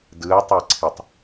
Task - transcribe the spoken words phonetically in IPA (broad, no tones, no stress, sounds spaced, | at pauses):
d ɯ ɐ̯ tˤ ɛ ǀʰ i tˤ